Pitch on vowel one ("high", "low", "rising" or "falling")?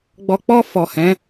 low